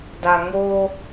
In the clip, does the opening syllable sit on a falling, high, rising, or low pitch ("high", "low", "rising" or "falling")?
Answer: low